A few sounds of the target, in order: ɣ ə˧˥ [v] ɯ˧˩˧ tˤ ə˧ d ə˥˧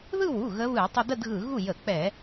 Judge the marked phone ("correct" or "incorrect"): incorrect